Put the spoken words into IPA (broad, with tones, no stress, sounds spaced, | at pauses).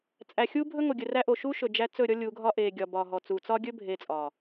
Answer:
t͡sʼ æ˨ xʲ u˦ bʱ ɵ˦ ŋ o˨ ɡʲ ɵ˨ r æ˦ ʔ o˨ ʃ u˦ ʃ ɵ˨ d͡ʒ æ˦ t͡s ɵ˦˨ ɾʲ ɔ˦ lʲ u˨˦ ɡʱ ɒ˦ ʔ e˨ ɡʲ ɒ˨ b ɒ˨ ɦ ɔ˨ t͡s u˨ t͡s ɒ˦ ɡʲ ɵ˦ bʱ e˨ t͡sʼ ɒ˨